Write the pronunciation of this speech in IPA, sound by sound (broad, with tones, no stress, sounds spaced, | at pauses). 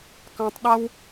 k ɑ̃˧ tˤ ɗ a˦ w